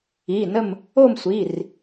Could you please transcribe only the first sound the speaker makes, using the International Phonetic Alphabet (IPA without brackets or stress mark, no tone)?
i